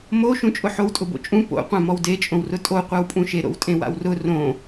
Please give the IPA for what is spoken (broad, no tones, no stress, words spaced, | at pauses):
mo ʃũt͡ʃʼʊħowtʼʊ bo̰t͡ʃʼũ po̰ qʷãmɔwdet͡ʃʼõw rʊtʼo qʷawpʼũʃeɾo̰w tʼẽwa̰wrʊ rõ